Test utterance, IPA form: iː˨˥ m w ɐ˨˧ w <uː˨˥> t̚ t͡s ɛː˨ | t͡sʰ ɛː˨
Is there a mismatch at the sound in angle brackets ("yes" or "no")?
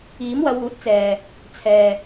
no